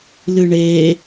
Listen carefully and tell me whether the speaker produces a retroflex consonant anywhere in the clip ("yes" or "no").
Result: yes